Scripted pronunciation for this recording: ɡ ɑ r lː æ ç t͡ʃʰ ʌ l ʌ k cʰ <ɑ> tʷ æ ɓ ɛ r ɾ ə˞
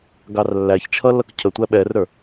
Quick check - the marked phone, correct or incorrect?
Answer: incorrect: ə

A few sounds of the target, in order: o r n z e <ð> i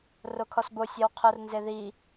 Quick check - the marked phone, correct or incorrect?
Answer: correct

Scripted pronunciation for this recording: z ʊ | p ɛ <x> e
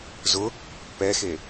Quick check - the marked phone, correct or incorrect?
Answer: correct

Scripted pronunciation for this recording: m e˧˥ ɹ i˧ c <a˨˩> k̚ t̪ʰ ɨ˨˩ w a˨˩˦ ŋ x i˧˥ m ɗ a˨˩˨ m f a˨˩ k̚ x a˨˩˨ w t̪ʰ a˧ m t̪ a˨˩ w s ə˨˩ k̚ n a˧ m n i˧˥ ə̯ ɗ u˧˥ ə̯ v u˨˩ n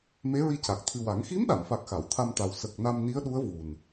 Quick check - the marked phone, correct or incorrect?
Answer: correct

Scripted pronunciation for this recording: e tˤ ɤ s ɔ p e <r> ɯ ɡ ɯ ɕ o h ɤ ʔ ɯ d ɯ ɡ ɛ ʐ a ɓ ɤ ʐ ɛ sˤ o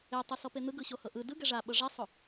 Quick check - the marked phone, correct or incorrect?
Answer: incorrect: n̪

